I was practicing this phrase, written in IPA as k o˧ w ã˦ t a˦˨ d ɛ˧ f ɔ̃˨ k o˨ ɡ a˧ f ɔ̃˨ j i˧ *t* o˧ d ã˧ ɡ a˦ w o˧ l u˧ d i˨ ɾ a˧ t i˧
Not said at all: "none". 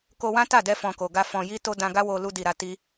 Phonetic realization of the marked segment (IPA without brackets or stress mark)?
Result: t